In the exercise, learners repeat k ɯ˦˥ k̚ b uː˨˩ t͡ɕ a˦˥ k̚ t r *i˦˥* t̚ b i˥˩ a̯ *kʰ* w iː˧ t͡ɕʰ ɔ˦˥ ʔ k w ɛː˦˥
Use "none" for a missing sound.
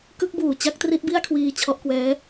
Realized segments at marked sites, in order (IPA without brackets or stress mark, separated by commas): i˦˥, kʰ